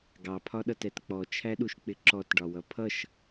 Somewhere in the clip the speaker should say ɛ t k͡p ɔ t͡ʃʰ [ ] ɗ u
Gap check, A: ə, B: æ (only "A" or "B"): B